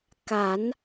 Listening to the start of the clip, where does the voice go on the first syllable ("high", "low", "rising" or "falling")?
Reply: rising